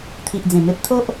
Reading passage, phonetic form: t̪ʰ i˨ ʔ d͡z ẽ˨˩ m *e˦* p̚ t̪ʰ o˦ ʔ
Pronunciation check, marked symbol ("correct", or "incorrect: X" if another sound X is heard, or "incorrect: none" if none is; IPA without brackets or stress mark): correct